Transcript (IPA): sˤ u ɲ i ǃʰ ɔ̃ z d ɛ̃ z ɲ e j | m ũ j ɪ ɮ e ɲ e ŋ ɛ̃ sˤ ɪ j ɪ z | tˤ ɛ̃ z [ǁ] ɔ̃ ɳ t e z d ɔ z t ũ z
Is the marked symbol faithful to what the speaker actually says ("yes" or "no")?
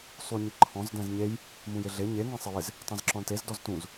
yes